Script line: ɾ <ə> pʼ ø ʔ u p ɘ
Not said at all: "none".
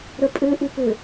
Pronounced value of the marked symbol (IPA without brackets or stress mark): ə